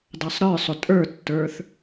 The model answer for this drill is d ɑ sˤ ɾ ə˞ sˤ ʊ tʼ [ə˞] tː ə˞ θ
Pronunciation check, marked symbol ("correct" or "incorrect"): correct